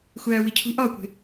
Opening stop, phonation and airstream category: aspirated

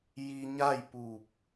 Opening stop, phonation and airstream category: plain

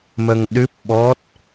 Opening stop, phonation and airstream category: implosive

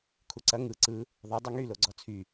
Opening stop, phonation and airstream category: aspirated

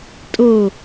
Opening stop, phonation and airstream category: ejective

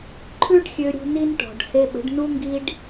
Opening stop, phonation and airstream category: click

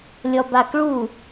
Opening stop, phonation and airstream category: plain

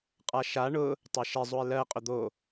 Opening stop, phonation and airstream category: ejective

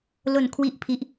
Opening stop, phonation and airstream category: aspirated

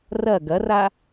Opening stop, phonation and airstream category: plain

